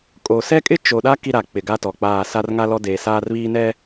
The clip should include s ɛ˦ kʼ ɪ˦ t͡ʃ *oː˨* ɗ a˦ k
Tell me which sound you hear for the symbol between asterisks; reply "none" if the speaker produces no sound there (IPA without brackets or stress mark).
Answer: o˨